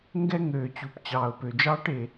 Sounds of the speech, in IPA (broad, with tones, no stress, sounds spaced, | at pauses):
ŋ ɡ ɛ˥ ŋ øː˩ t͡ɕ u˩ p t͡ɕ ɑː˩ ʊ̯ p ø˩ d͡ʒ ɑː˥ ʈ e˩